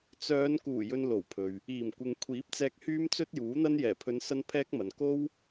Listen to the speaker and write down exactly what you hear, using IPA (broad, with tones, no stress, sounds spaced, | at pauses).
t͡s œː˨˧ n k uː˨˩ j ɵ˨ n l o˨˩ w pʰ ɵ˨ ɥ | iː˨˩ m kʷ ɪ˨ ŋ kʷʰ iː˨˥ p̚ t͡s ɛː˧ k̚ h yː˥ m t͡s ɵ˥ t̚ j uː˨˥ n̪ ɐ˥ n j ɛː˨˩ pʰ ɵ˨˧ n s ɐ˧ n pʰ ɛː˥ k̚ m ɐ˨ n k o˥ w